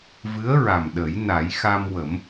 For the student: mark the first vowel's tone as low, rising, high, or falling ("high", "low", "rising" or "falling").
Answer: rising